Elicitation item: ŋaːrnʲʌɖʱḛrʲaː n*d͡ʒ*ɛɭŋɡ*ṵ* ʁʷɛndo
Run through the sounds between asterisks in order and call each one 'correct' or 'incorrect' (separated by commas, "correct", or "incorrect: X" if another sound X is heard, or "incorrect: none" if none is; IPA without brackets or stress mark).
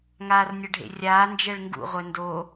correct, correct